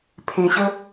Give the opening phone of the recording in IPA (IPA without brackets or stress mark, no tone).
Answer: pʰ